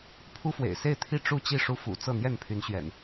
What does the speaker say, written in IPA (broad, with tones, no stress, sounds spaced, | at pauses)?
pʰ u˦ f w ḛ˨˩ ɪ̯ s e˥˨ ɪ̯ t̪ʰ i˥˨ ʈ͡ʂ u˥˨ t͡ɕ i˥˨ ʂ u˦ f ṵ˨˩ t͡s ɤ˥˨ n̪ j ɛ˥˨ n pʰ y˨˦ n ɕ ɥ ɛ̰˨˩ n